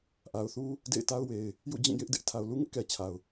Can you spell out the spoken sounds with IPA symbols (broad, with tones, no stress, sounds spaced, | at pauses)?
ʔ a˨ ʊ̯ θ u˦ | d ḛ˦˨ ɪ̯ t a˦ ʊ̯ w e˨ ɪ̯ | j ṵ˦˨ d͡ʑ ĩ˦˨ j ɪ˦ ʔ d ɪ˦ ʔ tʰ a˨ ʊ̯ l u˦ ŋ ɪ˦ ʔ k ɛ˨ t͡ɕʰ a˨ ʊ̯